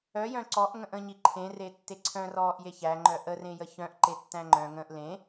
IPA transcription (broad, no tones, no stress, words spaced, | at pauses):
œjœ̃ ǀɔʔ ŋə̃ʔə̃ɲi ǃʰẽre tːeǀʰœ̃rɔːʔje çæŋ͡ǃœ ʔərẽjə çœ̃ʔ ǃetːæ̃ŋ͡ǃœ̃ ŋə̃ːʔlẽ